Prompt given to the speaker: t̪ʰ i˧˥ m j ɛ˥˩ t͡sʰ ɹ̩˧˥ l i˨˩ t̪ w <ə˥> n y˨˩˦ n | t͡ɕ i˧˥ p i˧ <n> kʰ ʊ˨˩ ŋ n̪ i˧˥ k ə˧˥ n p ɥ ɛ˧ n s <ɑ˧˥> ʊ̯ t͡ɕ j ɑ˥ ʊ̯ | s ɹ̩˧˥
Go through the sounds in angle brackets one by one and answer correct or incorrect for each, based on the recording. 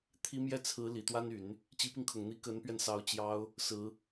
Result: incorrect: a˥, incorrect: ŋ, correct

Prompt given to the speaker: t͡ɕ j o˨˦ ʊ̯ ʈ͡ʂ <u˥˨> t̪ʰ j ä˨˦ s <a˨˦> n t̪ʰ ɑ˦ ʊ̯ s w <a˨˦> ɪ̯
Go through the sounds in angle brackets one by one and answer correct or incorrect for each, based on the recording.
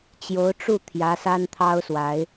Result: correct, incorrect: a˦, correct

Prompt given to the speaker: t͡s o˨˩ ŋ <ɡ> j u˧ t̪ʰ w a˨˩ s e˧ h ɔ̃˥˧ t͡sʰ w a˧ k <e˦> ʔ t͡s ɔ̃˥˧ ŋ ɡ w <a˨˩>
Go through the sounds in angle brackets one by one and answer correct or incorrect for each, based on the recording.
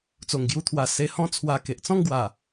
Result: correct, incorrect: e˨, correct

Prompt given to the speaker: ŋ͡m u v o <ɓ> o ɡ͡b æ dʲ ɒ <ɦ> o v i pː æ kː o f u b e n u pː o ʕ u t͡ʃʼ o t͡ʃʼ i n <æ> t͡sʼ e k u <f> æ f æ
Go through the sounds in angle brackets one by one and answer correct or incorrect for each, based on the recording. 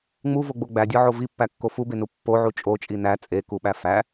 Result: incorrect: ɡ͡b, incorrect: ʕ, correct, incorrect: ɓ

